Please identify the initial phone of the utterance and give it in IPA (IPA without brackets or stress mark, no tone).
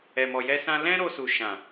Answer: ɛ